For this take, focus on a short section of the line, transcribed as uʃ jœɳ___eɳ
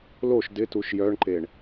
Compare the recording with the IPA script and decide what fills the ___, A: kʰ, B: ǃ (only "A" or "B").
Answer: B